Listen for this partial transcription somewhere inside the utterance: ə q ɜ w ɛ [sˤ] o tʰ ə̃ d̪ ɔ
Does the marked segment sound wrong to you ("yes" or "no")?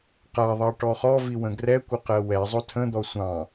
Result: yes